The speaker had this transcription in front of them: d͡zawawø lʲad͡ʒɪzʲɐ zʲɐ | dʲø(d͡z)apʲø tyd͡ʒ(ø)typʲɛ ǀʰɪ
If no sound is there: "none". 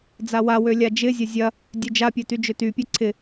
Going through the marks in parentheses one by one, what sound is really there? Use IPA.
d͡ʒ, ø

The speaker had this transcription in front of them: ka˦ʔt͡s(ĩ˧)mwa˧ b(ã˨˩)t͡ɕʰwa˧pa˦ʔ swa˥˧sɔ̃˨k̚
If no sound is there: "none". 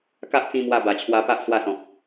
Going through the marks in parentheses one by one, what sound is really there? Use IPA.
ĩ˧, a˨˩

